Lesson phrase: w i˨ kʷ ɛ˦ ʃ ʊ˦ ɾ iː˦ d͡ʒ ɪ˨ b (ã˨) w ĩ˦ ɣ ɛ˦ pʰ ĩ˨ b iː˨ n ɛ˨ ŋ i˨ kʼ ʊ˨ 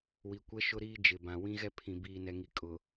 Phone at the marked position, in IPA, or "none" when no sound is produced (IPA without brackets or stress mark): ã˨